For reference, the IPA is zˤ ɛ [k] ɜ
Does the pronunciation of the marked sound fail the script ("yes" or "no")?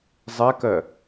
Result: no